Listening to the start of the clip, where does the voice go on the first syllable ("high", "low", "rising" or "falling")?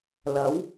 rising